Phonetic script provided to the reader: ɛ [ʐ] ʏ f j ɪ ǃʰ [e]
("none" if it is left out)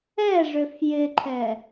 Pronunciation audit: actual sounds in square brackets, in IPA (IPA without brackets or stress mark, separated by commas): ʐ, ɛ